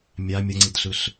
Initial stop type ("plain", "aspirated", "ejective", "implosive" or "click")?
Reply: click